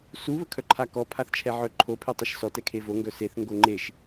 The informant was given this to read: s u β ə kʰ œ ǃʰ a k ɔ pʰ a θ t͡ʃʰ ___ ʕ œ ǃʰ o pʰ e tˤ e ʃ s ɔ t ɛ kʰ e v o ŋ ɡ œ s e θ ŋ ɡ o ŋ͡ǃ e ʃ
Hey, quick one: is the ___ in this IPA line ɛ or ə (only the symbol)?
ɛ